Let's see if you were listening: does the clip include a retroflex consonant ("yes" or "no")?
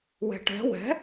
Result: yes